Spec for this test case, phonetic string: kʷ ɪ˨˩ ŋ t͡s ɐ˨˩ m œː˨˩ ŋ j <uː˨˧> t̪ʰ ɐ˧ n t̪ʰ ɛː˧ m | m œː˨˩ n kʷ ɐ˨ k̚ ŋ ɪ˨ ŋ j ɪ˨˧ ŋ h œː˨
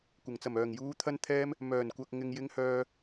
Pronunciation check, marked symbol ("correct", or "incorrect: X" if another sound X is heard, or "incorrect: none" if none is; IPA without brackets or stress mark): correct